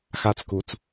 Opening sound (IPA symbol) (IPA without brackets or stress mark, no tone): x